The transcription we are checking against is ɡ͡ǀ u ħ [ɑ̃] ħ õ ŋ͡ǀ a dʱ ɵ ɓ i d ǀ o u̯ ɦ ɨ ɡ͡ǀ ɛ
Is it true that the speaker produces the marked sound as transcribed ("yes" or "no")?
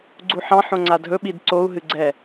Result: yes